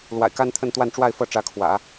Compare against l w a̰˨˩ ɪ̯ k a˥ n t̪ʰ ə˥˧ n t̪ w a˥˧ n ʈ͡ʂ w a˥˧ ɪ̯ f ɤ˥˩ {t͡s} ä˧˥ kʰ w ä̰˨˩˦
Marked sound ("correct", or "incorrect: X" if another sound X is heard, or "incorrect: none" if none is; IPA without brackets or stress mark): incorrect: ʈ͡ʂ